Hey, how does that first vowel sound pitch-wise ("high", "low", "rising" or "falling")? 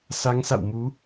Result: rising